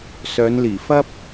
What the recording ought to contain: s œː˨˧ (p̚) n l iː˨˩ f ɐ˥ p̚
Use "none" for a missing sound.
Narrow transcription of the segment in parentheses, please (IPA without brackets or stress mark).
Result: none